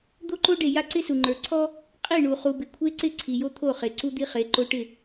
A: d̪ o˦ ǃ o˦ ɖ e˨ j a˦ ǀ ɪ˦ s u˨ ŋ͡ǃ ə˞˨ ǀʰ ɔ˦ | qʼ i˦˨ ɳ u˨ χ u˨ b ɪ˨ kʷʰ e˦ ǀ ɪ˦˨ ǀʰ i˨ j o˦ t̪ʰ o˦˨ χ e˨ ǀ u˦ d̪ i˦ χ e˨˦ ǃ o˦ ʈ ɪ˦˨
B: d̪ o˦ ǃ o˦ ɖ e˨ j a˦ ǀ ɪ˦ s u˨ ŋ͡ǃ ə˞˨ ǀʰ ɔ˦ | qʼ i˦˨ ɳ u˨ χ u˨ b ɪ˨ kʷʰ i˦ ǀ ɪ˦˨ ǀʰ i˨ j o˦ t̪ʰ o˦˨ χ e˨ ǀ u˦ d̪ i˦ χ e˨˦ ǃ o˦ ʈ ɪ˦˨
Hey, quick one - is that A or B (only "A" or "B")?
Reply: A